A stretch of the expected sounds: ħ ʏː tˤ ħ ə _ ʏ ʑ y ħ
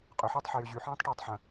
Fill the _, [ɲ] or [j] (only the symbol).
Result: j